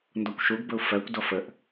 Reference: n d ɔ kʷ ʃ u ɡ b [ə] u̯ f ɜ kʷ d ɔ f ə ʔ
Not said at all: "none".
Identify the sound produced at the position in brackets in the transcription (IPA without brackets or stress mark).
ə